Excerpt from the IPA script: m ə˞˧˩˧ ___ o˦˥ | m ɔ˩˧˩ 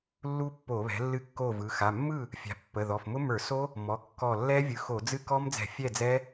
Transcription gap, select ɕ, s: s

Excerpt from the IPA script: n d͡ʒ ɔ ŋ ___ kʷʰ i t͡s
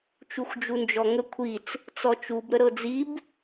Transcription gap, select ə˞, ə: ə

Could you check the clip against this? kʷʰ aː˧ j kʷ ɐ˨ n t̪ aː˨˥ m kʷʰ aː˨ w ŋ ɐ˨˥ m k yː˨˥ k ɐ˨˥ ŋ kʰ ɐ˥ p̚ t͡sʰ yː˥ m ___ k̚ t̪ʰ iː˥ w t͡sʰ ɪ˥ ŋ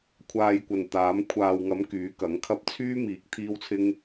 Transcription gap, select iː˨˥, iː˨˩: iː˨˥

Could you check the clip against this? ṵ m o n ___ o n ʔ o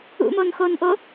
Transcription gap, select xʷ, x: x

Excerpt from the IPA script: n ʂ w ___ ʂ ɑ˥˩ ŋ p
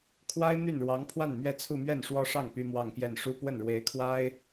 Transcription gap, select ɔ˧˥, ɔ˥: ɔ˥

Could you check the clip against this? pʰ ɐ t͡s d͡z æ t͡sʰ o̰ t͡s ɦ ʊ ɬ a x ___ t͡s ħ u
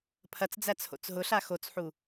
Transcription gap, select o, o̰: o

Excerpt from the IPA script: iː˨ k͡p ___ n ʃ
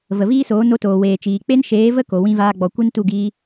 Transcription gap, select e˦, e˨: e˦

